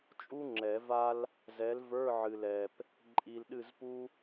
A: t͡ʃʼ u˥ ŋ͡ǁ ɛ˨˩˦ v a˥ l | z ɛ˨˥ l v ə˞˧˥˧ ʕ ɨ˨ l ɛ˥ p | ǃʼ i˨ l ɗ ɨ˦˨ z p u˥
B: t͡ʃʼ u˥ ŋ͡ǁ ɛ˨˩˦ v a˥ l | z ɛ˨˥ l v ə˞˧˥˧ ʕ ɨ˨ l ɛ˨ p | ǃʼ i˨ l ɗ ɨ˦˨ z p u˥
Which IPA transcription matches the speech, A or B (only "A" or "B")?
B